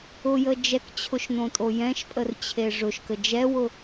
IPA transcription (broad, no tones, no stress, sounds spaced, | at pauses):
ʊ j ə d͡ʒ ɛ k t͡ɕʰ ʊ ʃ n õ tʼ o j ɛ̃ ʃ pʼ ə r t͡ɕʰ e ʐ ʊ ʃ k ə d͡ʒ ɛ w ʊ